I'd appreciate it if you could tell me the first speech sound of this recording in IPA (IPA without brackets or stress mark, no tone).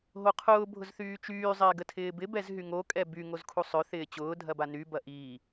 ɦ